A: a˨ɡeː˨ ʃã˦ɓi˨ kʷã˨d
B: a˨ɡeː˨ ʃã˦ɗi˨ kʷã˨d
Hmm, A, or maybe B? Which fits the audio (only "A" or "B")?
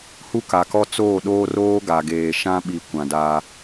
A